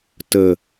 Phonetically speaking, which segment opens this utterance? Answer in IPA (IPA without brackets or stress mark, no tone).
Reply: t